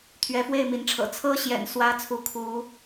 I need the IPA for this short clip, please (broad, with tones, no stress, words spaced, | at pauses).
t̪ʰɥɛ˨˦fwe˥˨ɪ̯mi˨˦nʈ͡ʂʰɤ̰˨˩ t͡sʰɤ˦ɕjɛ̰˨˩n swä˦t͡sʰu˨˦ kʰu˨˦